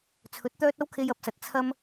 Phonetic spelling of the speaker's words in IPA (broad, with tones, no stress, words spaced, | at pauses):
t͡sʰɵ˨˥t̚t̪œː˥t̚ ɐ˥wkʰe˧jɐ˨˥p̚sɐ˨t̚ t͡sʰɐ˥m